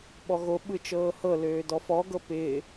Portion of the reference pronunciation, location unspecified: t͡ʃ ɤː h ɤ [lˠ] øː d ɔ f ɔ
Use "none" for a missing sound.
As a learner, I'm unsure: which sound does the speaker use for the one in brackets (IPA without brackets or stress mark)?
l